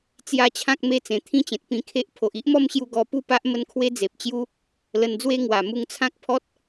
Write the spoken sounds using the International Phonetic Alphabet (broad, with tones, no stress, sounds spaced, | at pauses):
t͡s j a˥˧ t͡ɕʰ ã˦ k̚ m e˥˧ t͡s ẽ˨˩ t̪ʰ ĩ˥˧ t͡ɕ ẽ˨ t̚ p ĩ˧ kʰ e˦ ʔ pʰ o˨ ʔ i˦ ʔ m ɔ˦ m ɕ j u˧ ɡ ɔ˧ p u˥˧ p a˦ ʔ m ə˥˧ n kʰ w e˦ d͡z e˨ p̚ t͡ɕ j u˦ | l ə˧ n d͡z w e˦ ŋ w a˨˩ m u˧ ŋ t͡sʰ ã˦ k̚ pʰ ɔ˦ t̚